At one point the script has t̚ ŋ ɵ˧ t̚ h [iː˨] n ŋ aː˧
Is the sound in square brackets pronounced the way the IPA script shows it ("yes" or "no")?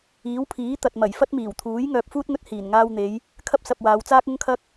no